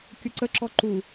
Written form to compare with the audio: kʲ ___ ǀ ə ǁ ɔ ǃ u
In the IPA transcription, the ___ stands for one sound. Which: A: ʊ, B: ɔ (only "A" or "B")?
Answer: A